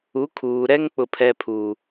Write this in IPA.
u˨˦ kʰ uː˨ ɾ ɛ˦ ŋ k͡p ʊ˨ pʰ ɛ˨ pʰ uː˨

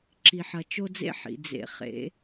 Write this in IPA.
ǁ i˨ ħ ɐ˨ t͡ʃ o˦ d͡z ḛ˦ ħ ḭ˨ d͡z ḛ˨ χ ḛ˨˦

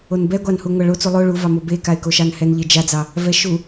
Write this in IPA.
o n b ɛ ɡʷ ɑ n h u ŋʷ a ɭ o t͡s u lˠ o ɭ u v ɑ m o b e k a ɪ̯ k o ʃ ɑ n h ɛ n ʎ e d͡ʒ a d͡z ɑ | v ɛ ʃ u

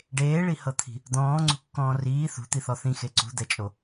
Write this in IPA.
ɖ eː ɭ i h ɤ t̪ʰ i̤ | d̪ ɔ̃ː ŋ͡ǀ ṳ kː ɔ̃ː r iː θ ṳ t̪ i θ ɔ θ ĩ x e ǀ ṳ d̪ ɛ t͡ʃʼ o

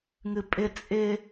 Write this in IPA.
ŋ ɨ pʼ ɪ t͡sʼ ɪ

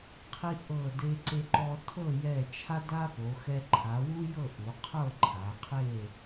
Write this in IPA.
qʰ i˧ ʔ ɤ˧˩ d e˧ ǀ e˧ ǃ ɔ˧ tʰ ɤ˥˧ j ɛ˧˩ t͡ʃʰ a˥ d a˥ p o˩˧ x ɛ˧ ǃʰ a˩˧ w u˥ j ɤ˥˧ ʔ u˩˧ qʰ ɤ˥˧ ǃʰ a˩˧ qʰ e˥˧

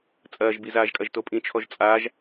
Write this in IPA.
t͡sʼ ɐː ʒ b i z aː ʒ kʼ ɐ ʒ t o pʼ ĩ t͡ʃʰ ɔ ʒ t͡sʼ aː ʒ

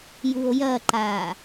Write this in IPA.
j u o̯ j ɐ ǃ aː

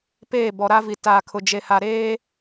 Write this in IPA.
p eː˦˨ b ɔ˨ ɾ a˦ v i˨ t aː˨ kʰ ʊ˨ d͡ʒ e˨ h a˨ ɾ eː˦

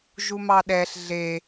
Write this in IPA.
ʒ u m ɑ ɗ ɛ ɬ ɮ e

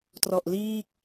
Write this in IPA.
t r ɔ˨˩ ʔ l iː˥˩ k̚

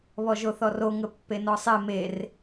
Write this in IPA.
β ɔ ʒ o θ ɔ r o ŋ ə pː e n ɔ sˤ e m e r

